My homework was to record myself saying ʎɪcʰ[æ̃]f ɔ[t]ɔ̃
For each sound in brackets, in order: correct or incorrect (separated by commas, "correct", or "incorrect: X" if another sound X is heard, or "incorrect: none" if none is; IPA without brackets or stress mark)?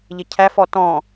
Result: incorrect: æ, correct